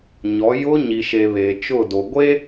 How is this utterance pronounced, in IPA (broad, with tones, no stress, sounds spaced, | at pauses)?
ɲ ɔ˨˦ j ʊ˦ ɲ i˨ ʃ e˨ β e˨ t͡ʃ ʊ˦˨ d o˨ ɡʷ e˦